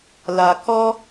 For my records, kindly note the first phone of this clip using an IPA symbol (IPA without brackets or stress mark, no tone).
l